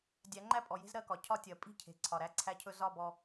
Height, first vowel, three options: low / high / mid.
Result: low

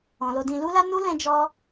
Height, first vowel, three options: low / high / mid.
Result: mid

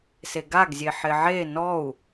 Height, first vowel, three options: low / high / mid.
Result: mid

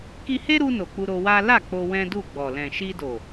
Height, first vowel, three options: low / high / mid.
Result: high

